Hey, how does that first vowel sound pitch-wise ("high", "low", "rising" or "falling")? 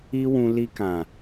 high